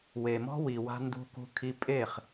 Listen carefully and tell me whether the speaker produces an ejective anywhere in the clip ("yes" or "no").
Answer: yes